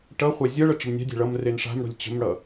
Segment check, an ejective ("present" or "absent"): absent